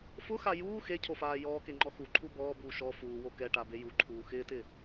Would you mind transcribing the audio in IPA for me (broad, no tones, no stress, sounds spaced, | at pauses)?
f ʊ x a j uː x e cʰ o f aː j ɔː k e ŋ͡ǃ ɔ x u ǃʰ u b ɔː b uː ʃ ɔ f uː w o k ɛ ʈ a b e j u ǃʰ uː x ɪː t ɪː